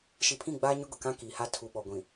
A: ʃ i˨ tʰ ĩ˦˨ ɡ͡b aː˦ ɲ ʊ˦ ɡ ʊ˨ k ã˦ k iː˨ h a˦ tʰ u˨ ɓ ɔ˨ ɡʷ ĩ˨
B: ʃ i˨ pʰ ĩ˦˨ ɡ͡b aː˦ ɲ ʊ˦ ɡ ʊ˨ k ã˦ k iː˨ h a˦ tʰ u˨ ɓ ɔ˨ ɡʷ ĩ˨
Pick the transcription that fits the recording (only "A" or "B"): B